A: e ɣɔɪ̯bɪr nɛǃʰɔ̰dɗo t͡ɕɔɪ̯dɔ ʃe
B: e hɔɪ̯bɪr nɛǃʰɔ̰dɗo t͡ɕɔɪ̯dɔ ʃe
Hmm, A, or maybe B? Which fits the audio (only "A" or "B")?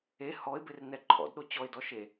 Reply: B